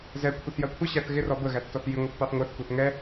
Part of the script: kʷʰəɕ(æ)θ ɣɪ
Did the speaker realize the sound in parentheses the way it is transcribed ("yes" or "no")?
yes